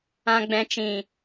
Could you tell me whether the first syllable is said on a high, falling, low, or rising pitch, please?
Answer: low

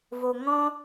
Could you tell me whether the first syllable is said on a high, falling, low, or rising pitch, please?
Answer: low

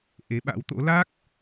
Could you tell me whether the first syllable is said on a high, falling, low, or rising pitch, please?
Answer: rising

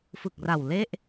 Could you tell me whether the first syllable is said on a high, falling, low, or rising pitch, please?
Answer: low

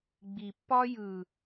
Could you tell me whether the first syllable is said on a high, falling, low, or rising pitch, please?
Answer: low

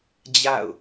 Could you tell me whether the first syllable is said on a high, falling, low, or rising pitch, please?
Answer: falling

